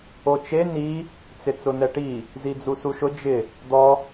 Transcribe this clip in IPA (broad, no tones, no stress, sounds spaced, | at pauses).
o t͡ʃ e n i | t͡s ɪ t͡s ʊ n̪ ɛ ʈ i | z i d͡z u s u ʃ ʊ d͡ʒ ɪ | d̪ ɔ